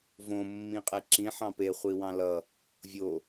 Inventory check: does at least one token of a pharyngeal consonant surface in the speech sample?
yes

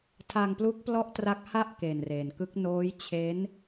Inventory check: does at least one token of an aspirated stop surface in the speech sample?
yes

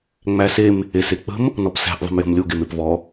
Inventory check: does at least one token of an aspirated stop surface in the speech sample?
no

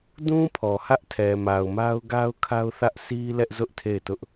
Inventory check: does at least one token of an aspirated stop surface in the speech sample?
yes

